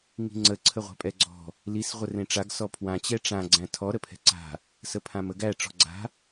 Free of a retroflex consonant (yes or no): no